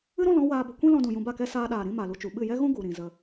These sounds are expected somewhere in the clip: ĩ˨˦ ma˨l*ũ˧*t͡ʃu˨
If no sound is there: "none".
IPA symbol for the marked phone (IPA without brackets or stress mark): u˧